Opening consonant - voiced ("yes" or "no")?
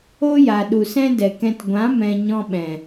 yes